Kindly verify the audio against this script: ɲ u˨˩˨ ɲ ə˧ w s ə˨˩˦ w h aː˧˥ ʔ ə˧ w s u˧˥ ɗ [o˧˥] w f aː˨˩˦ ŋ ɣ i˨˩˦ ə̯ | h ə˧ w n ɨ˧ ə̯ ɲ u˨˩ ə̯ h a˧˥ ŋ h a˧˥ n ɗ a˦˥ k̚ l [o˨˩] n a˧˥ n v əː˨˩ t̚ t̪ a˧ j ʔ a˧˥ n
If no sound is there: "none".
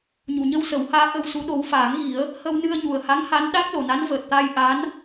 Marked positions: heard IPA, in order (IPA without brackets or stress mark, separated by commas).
o˧˥, o˨˩